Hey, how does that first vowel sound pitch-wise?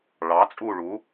rising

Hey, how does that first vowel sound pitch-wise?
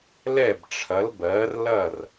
falling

